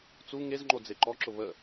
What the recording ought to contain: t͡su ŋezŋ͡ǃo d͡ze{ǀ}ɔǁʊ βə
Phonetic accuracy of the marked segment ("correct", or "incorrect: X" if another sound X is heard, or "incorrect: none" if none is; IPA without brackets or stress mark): incorrect: ǃ